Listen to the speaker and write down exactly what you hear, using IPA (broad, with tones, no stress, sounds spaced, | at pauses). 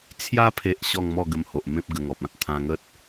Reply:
t͡sʰ j a˦ pʰ e˦ ʔ ɕ ɔ˥˧ ŋ m ɔ˥˧ ɡ ə˧ m h o˨ ʔ m ẽ˦ p̚ ɡ ə˧ ŋ ɔ˨ p̚ ã˦ t̚ t̪ʰ ã˧ ŋ ə˦ t̚